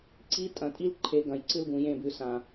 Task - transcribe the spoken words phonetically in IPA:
ǀ i˦ tʼ ɐ̃˨ tʼ i˦ l ǃʰ e˨˦ ɡ ɐ̃˨ j ǀ ɨ˦ l ɡ ũ˨ j ẽ˦˨ b ʉ˨ s ã˨

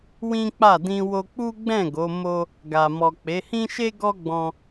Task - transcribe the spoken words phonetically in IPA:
w ĩ˦ k͡p a˦˨ d ĩ˧ w o˧ k͡p u˦ ɡ͡b ɛ̃˦˨ ɡ o˨˦ m o˦ | ɡ a˨ m ɔ˨ k͡p e˨˦ h ĩ˦ ʃ e˦ ɡ ɔ˦ ɡ͡b ɔ̃˧

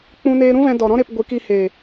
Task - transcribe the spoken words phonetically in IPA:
k͡p ũ˧ n eː˧ ɾ ũ˦ v ɛ̃˧ d ɔ˨ ɾ ɔ̃˦ ɾ e˦ p ɡʷ ɨ˨˦ k i˧ h eː˨

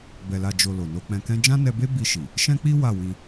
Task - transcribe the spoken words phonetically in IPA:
b ɛ˨ l a˨ d͡ʒ o˨ l o˨ n o˧ k͡p ɛ̃˧ k ɛ̃˦ d͡ʒ ã˦ n ɛ˧ b e˦ b i˧ ʃ i˨ | ʃ ɛ̃˦ k͡p i˦ w a˦˨ w ĩ˧

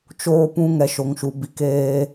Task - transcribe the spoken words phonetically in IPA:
t͡ʃ oː˧ p ũ˧ ŋ ɛ˨ ʃ o˨ ŋ ʃ u˨ b i˨ k eː˧

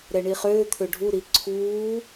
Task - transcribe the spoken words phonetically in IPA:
ɾ ɛ ɳ i χ øː t̪ʰ ø ɖʱ u ɾ i ǀʰ uː

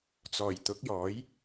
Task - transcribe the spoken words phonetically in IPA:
t͡s ɔː˨˩ j t̪ ʊ˨˥ k̚ j ɔː˨˥ j

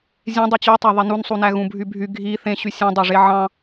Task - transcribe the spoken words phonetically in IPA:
zʲ ẽ dˤ ɯ t͡ɕ y tˤ æ ðˤ i n u n sˤ u n æ ɣ ũ bʱ y bʱ y ɡʱ i θ ẽ ɕ y sʲ ẽ dˤ o ʐ e ʕ ɑ̃

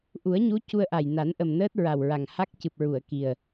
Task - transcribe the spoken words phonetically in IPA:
ʔ u˨˩˦ ə̯ ɲ u˧˥ c u˧ ə̯ ʔ a˨˩ j n a˨˩˦ n ʔ ə˨˩ m n əː˦˥ t̚ ɹ a˨˩ w ɹ a˨˩ ŋ h a˦˥ k̚ c ɨ˨˩ p̚ ɹ u˨˩˨ ə̯ k i˨˩ ə̯

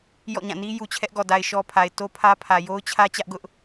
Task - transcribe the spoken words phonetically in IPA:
j ɔ̰˦˨ ɲ ã˦˨ n i˦ j u˨ t͡ɕʰ ɛ˦ ʔ ɡ ɔ˨ d a˨ ɪ̯ ʃ ɔ˦ pʰ a˨ ɪ̯ t o˦ pʰ ä˦ pʰ ä˨ j o˦ ʊ̯ t͡ɕʰ ä˦ t͡ɕ ä˦ ʔ ɡ ʊ˦ ʔ

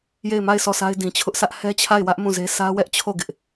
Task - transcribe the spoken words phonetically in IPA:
j e˦˨ ɪ̯ m a˦˨ ɪ̯ sʰ ɔ˦˨ sʰ a˦ ɪ̯ d ĩ˨ t͡ɕʰ ʊ˦ ʔ sʰ ä˦ ʔ h ɛ˦ t͡ɕʰ a˦˨ ɪ̯ w ä˦ ʔ m ũ˦˨ z e˦ sʰ ä˦ w ɛ˦ ʔ t͡ɕʰ o˦˨ ɡ ɪ˦ ʔ

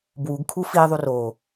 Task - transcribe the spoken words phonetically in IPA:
b w u ɡ kʰ u f i ðˤ u r o

